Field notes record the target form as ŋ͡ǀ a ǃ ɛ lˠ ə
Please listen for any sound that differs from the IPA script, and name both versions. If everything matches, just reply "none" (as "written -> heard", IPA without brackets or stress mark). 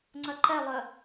a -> ɐ